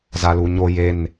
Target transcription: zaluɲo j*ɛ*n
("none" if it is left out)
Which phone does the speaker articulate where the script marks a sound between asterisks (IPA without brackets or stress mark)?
e